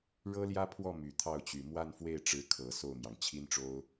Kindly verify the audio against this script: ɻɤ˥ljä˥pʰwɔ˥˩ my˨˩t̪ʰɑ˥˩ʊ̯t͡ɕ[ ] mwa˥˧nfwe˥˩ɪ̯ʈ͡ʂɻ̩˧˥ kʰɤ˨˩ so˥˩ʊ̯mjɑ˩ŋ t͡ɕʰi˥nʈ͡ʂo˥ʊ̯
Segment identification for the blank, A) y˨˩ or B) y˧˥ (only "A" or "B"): A